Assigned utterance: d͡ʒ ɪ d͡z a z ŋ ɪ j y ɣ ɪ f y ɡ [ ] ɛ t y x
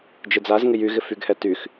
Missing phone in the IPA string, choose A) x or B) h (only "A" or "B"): B